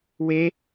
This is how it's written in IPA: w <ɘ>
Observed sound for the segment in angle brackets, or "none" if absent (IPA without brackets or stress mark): e